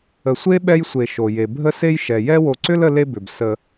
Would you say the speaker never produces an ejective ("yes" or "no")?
yes